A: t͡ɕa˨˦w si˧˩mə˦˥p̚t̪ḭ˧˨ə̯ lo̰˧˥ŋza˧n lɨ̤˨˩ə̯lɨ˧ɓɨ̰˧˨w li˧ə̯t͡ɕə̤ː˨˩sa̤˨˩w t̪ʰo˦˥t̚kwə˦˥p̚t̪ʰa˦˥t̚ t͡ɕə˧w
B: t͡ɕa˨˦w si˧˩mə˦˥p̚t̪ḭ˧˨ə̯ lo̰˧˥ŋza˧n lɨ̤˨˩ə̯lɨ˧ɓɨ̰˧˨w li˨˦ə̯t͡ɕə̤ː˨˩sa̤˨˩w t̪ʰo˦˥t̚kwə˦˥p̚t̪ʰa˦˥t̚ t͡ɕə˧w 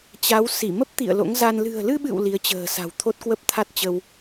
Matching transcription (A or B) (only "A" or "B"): B